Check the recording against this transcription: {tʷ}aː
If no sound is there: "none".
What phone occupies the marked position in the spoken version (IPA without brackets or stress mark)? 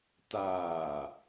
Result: t